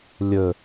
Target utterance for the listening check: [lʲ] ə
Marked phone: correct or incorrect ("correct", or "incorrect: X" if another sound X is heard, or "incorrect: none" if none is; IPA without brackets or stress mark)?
correct